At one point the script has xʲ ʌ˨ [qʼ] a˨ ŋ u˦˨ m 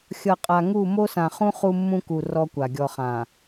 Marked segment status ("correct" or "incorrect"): correct